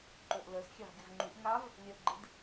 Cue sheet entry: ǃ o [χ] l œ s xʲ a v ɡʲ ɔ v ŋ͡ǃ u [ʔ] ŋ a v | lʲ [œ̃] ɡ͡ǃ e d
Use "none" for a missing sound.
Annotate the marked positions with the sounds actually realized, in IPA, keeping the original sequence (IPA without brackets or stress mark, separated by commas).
ʔ, ʔ, œ